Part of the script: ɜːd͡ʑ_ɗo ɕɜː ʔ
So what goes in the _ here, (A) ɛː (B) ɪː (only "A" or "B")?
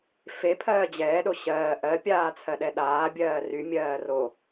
A